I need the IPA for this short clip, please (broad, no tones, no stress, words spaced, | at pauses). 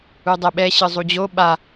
udˤɛɓɛ ɕɯzˤud͡ʑo ɓa